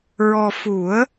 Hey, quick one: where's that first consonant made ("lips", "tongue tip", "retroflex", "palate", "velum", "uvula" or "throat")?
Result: tongue tip